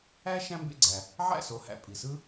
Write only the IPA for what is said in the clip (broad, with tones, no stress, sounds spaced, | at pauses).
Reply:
æ˥ ʃ æ̃˥ m b ḛ˥˩ ɡ͡ǀ æ˩ | ʕ æ̰˥˩ s o˩˥ h æ̰˩ pʼ i˩ s ɯ˥